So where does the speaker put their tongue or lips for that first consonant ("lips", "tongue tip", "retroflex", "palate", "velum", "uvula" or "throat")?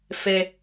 lips